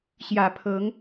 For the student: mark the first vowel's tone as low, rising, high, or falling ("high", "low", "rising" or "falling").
low